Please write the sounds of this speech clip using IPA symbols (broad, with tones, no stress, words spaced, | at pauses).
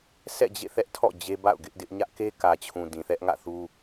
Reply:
sʰɛ̰˦˨d͡ʑḛ˦˨θɛ˦ʔtʰɔ̰˦˨ d͡ʑe˦ba̰˦˨ʊ̯ɡɪ˦ʔdɪ˦ʔ ɲä˦ʔke˦kä˨t͡ɕʰũ˨ dĩ˨θɛ˦ʔŋä̰˦˨θu˦